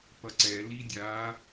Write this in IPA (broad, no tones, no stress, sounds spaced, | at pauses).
p ʌ ǀ ɛ l i dʲ a